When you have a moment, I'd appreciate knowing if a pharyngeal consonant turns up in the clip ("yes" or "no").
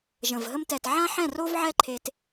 yes